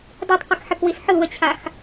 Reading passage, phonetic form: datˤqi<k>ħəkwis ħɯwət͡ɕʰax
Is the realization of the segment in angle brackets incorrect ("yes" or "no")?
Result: no